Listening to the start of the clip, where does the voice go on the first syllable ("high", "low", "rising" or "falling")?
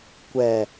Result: low